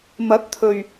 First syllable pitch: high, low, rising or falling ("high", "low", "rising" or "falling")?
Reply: rising